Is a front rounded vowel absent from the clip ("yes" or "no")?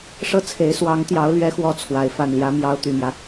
no